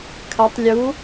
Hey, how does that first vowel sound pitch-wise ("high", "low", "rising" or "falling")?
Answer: rising